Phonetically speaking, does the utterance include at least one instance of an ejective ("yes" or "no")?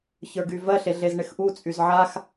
yes